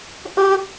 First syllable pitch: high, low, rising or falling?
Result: high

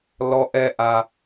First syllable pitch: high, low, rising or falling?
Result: high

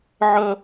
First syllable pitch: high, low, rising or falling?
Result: high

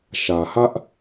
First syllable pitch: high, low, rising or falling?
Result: low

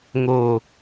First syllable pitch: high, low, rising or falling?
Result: low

